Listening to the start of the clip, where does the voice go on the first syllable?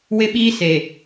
high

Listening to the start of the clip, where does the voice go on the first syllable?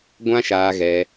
high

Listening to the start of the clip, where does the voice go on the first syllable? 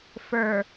low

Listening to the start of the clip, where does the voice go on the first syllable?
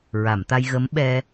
low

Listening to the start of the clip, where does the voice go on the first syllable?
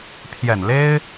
low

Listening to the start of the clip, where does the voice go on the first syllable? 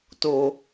high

